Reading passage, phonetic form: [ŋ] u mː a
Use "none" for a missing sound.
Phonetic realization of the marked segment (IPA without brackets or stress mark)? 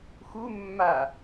x